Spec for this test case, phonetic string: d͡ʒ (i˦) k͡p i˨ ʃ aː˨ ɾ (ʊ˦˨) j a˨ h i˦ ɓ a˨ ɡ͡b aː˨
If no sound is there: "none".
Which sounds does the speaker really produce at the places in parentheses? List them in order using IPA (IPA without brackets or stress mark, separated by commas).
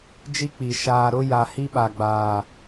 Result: i˦, ʊ˦